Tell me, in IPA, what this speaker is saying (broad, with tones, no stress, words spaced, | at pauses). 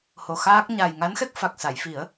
ho˨˩xaː˦˥k̚ ɲaː˨˩jŋa˧˥nxɛ˦˥k̚fa˨˩k̚ sa˨˩˨jfi˨˩˦ə̯